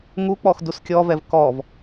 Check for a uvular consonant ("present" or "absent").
absent